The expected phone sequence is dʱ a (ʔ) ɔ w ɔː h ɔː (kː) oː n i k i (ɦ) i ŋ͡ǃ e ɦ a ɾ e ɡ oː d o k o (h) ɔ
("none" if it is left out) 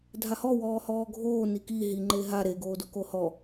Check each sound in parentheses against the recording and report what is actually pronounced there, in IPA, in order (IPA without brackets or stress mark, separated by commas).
h, ɡʱ, ɦ, h